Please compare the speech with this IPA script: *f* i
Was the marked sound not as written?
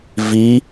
yes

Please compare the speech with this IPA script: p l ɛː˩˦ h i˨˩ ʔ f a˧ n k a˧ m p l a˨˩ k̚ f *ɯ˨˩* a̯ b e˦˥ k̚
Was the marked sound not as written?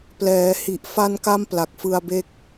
yes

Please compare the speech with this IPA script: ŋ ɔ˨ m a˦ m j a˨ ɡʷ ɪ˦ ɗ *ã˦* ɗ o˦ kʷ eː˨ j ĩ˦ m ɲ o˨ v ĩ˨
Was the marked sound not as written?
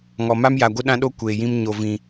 no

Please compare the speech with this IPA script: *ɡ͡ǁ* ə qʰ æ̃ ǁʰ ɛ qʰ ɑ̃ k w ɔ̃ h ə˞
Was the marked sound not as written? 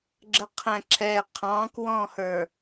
no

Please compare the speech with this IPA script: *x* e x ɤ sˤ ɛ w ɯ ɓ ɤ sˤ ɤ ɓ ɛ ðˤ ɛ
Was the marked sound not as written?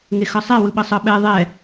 yes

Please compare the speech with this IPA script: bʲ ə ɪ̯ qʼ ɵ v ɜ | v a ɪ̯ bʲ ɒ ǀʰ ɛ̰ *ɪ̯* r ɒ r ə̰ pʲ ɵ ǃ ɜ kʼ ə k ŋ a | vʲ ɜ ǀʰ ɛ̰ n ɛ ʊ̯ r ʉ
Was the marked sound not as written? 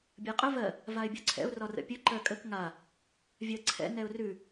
yes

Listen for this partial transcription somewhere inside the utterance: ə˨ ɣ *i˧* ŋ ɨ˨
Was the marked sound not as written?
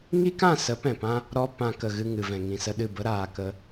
yes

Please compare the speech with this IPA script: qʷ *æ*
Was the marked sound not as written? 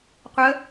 yes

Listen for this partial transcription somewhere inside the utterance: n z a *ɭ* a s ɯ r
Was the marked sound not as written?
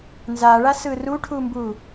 no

